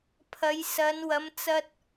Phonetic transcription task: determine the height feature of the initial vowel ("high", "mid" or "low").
low